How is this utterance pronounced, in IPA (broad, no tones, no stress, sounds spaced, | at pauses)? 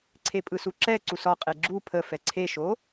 ǀʰ e pʼ ɯ s u ǁ ɛ ǀ u s ɒ qʼ e ɡ͡ǁ u pʰ ə f ɛ ǀʰ e ʃ o